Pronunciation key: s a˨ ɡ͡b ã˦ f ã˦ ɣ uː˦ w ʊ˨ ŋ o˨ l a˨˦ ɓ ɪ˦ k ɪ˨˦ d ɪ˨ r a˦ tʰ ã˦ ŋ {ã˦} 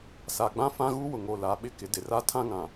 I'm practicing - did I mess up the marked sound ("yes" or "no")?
yes